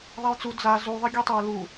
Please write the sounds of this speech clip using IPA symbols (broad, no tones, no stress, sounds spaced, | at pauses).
ðˤ ɛ j t͡s u d͡z a z u ðˤ ɨ ɡʲ e tˤ e ʊ̯ l u